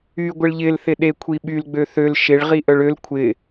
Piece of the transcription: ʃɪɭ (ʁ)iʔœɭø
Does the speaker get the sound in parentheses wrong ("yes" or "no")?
no